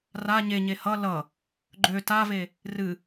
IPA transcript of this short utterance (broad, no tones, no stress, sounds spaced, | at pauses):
r a ɲ e ɲ e h ʌ l ʌ | ɡ͡ǃ ø t a v e | r ɨ